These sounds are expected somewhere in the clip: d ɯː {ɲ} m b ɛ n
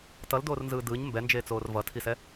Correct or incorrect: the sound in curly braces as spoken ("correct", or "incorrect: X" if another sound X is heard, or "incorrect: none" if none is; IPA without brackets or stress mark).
correct